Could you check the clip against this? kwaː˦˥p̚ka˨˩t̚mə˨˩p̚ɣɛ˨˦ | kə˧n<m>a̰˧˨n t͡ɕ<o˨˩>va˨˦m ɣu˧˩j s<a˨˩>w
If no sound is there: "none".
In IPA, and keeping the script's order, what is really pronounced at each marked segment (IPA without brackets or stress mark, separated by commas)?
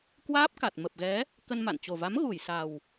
m, o˨˩, a˨˩